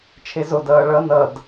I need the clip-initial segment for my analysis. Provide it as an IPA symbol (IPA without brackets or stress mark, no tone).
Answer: t͡ʃʰ